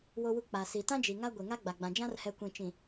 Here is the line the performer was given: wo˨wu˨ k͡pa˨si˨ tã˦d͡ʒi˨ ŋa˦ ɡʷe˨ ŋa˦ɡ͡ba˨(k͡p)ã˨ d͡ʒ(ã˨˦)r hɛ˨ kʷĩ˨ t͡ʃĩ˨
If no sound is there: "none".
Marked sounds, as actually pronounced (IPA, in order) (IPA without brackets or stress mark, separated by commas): ɡ͡b, ã˦